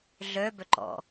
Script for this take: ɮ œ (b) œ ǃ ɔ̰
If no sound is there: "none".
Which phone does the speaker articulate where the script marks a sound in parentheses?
b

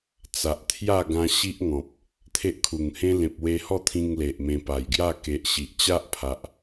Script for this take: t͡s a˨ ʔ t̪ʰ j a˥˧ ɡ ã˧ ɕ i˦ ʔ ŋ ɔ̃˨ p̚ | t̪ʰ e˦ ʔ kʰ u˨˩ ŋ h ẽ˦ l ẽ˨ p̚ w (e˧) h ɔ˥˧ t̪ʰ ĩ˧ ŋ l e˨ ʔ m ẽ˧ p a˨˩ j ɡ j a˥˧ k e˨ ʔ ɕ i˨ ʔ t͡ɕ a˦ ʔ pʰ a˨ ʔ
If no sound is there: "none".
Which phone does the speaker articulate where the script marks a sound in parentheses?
e˧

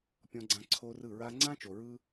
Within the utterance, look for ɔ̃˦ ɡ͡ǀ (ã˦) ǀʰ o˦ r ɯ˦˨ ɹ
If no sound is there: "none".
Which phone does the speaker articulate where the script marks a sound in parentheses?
ã˦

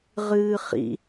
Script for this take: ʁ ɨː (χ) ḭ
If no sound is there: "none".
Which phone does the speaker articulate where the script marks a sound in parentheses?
χ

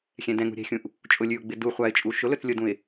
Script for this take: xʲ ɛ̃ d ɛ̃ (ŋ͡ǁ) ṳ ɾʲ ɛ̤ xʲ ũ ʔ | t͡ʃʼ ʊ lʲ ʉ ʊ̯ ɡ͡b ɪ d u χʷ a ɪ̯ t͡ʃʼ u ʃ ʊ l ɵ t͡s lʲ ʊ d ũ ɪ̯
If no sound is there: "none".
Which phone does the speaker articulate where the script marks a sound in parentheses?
ŋ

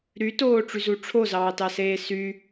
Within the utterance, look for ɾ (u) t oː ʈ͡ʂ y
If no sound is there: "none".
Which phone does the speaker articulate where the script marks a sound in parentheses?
y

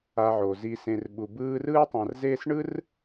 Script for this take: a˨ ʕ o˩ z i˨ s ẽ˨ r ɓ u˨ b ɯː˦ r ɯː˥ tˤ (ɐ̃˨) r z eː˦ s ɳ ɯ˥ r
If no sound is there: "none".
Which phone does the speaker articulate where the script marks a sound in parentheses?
ã˨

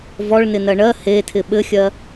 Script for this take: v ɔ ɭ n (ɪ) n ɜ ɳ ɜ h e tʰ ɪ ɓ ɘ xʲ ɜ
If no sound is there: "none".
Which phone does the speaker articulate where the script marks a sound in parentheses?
ɪ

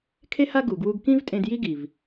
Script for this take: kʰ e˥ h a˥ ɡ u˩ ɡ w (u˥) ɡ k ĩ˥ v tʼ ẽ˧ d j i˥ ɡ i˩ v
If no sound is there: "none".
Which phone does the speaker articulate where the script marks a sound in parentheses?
u˧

